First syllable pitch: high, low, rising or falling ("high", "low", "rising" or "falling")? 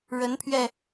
rising